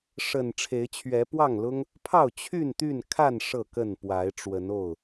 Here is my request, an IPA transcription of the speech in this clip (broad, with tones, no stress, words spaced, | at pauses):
ʂə˨˩n ʈ͡ʂʰe˨˦ɪ̯t͡ɕʰɥɛ˨˦ pwɑ˥˨ŋlʊ˦ŋ | pʰɑ˥˨ʊ̯ t͡ɕʰy˥˨nt̪y˥˨nkʰa˥˨n ʂɤ˥˨kə˥˨npwa˨˦ɪ̯ ʈ͡ʂwə˨˦no˥˨ʊ̯